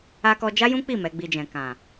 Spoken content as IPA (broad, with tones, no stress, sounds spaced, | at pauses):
a˧ k ɔ˧ d͡ʒ a˦ j ũ˦ k͡p i˦˨ m ɛ˨˦ ɡ͡b i˧ d͡ʒ ɛ̃˨ k ã˨